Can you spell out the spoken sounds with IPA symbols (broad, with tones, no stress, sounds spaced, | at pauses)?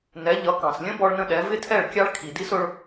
n ɛ˨˦ ʎ ʌ˨˦ k ɑ̃˨ s lʲ ə̃˦ b ɔ˦ ɭ n ə̃˦ ɗ ɛ˨˦ v ɪ˦ tʰ ɛ˦˨ ɭ kʲ ɑ˦ ɭ kʰ i˨ d i˦ s ʊ˧ ɭ